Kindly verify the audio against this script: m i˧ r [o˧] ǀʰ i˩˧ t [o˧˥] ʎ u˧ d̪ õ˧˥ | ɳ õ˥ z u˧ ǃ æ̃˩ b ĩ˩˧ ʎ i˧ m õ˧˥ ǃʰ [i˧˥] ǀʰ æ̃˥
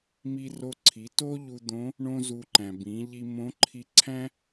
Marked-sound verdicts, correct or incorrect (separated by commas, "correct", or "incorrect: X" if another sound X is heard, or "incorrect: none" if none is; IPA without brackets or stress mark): correct, incorrect: o˥, incorrect: i˧